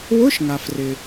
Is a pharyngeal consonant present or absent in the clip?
absent